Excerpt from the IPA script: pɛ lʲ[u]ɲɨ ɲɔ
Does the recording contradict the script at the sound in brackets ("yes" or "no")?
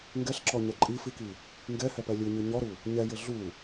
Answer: no